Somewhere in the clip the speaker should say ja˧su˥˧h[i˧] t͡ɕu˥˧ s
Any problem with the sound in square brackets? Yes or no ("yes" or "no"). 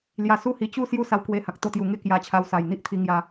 no